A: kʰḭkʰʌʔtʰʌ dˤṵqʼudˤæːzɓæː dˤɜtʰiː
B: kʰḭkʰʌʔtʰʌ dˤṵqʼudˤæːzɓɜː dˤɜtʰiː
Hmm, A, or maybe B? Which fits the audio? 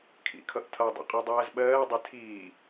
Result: B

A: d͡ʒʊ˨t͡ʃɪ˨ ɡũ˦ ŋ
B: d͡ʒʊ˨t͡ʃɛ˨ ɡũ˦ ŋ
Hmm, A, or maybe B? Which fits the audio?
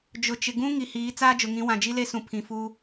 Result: A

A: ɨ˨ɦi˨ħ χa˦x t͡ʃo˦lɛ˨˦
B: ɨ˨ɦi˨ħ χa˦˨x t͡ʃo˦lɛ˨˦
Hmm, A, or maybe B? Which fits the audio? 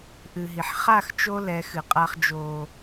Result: B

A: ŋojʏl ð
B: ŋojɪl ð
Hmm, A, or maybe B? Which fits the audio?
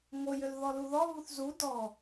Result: A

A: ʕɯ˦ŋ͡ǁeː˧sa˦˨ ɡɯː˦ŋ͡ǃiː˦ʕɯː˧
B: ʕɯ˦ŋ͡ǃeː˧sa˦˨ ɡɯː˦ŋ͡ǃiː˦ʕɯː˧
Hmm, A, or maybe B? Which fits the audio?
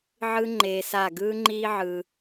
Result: B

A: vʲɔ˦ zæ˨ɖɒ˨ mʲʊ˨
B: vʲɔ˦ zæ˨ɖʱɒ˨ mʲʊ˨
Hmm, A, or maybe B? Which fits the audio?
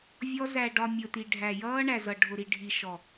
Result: A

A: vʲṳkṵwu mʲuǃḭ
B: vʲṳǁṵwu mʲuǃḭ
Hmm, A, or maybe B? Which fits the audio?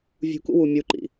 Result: A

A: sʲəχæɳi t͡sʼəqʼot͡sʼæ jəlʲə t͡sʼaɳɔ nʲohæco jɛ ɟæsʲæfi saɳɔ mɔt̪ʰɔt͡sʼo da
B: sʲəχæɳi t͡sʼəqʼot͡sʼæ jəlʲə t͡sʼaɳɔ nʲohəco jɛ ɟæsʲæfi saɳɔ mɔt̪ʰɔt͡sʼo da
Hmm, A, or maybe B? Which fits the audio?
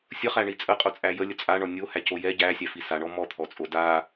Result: A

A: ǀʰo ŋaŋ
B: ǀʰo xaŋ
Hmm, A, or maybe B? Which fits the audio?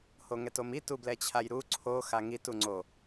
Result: B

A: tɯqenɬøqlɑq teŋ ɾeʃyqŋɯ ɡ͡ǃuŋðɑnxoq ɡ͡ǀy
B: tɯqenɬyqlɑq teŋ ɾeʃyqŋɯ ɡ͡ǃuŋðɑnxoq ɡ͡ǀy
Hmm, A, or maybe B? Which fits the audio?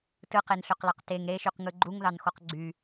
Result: A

